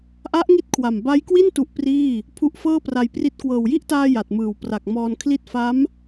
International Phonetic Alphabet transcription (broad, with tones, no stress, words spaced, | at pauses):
ʔa˦˥ʔŋi˦˥t̚kʰwa˨˩m ba˦˥jkwi˥˩n tu˦˥ʔpriː˥˩ | pʰu˦˥ʔfɤː˥˩pra˧jpri˦˥t̚ kwɤː˨˩wji˥˩ʔtaː˧ ja˨˩t̚mɯː˨˩wpra˨˩k̚ mɔː˧nkʰli˥˩t̚ fa˦˥m